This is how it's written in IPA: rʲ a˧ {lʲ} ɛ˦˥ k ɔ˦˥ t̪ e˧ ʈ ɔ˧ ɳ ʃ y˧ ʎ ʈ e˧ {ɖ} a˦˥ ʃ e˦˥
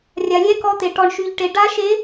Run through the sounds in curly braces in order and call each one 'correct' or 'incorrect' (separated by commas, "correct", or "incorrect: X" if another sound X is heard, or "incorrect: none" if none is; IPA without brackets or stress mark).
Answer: correct, correct